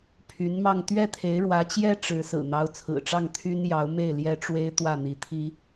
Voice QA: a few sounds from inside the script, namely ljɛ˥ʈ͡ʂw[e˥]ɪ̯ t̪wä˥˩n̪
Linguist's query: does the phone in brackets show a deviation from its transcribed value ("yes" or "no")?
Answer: no